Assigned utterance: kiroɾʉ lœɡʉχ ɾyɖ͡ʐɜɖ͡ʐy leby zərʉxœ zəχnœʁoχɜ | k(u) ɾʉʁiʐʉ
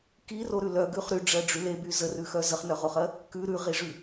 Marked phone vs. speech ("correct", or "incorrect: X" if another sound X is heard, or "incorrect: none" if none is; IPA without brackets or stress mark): incorrect: ʉ